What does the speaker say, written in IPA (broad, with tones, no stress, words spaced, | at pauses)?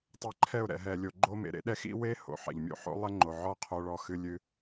tˤɛ˧ǃʰɛ˦˨ʊ̯ɾɛ̰˨ ɦɛ˨lʲo˨ɡ͡ǃo˧mḛ˨ ɾḛ˦ɗɛ˦xḭ˦ we˦ ho̰˨ħɛ̰˨ʎmʲo̰˦ ħo̰˦lˠɛ˦ŋ͡ǃo˨ʕɔ˦ qʰo˧ɭɔ˧xɨ˧ lʲɨ˧